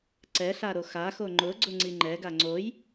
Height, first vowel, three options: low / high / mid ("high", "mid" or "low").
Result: mid